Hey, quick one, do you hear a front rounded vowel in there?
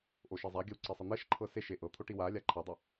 no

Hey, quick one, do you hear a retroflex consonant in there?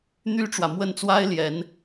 yes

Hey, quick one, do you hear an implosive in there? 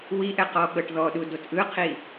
yes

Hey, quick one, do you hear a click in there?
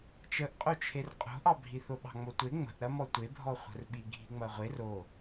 no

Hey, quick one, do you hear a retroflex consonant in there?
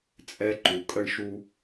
yes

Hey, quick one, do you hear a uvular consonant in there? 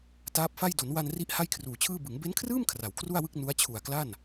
no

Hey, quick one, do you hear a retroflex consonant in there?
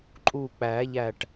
yes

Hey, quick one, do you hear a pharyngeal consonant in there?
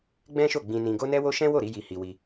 no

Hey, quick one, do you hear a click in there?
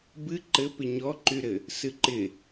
yes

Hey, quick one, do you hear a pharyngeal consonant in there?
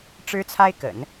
no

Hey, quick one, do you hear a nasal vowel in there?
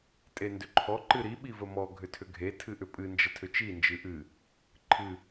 no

